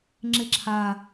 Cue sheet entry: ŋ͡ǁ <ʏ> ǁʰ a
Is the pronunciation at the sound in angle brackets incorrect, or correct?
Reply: incorrect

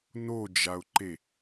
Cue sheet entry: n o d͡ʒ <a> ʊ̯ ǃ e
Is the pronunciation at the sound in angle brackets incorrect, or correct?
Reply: correct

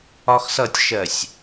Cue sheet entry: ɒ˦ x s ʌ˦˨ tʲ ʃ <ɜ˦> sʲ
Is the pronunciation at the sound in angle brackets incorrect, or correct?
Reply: incorrect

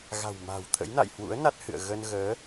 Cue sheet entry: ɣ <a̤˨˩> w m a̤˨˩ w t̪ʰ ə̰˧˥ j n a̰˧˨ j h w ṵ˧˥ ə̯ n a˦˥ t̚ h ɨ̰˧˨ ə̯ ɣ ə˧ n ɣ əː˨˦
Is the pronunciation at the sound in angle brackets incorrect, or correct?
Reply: correct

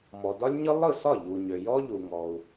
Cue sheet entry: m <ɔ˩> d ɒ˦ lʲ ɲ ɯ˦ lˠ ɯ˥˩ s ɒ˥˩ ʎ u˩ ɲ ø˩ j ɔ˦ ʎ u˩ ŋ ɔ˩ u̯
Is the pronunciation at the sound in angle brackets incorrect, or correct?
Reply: correct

